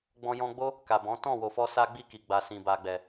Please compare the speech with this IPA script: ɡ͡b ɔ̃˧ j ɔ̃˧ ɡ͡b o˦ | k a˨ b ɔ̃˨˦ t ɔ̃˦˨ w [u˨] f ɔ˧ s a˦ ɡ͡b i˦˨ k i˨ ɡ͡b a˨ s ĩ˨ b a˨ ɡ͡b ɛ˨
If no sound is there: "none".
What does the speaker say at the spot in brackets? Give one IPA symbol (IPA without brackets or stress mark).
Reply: o˨